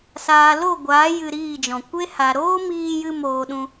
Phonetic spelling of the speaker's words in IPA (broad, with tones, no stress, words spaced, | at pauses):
saː˨lo˦˨ɡʷaː˨˦ jɨ˧ɾiː˦˨d͡ʒɔ̃˨ kʷe˦ha˨ ɾoː˦miː˧jɨ˧moː˨ ɗũ˦